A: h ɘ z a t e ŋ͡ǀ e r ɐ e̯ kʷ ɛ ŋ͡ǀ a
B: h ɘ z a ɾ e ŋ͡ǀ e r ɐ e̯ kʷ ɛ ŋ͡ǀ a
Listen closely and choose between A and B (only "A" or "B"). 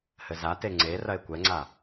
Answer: A